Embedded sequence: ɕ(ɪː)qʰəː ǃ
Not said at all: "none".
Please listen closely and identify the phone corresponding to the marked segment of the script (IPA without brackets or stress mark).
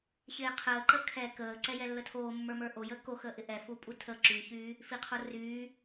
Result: ɪː